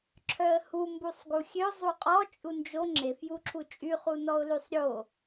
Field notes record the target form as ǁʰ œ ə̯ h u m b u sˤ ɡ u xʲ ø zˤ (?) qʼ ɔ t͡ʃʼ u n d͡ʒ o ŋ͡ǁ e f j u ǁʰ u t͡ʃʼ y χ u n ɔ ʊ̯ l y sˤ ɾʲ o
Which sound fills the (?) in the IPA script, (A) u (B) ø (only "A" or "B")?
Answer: A